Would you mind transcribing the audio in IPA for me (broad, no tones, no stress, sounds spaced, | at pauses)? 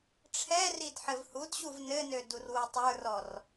ʈ͡ʂʰ ɛ r i d ħ ɘ v h u d ɕ u v n ɘ n ø d u r w u tˤ ə˞ r ɔ r